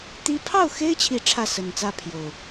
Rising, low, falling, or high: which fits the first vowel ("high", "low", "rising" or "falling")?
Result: high